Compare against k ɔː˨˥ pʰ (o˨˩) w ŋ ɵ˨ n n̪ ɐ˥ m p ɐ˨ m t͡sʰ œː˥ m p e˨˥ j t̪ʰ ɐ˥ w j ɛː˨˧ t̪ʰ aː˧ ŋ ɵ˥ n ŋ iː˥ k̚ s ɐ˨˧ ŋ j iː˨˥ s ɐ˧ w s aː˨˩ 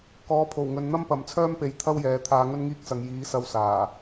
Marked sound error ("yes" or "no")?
no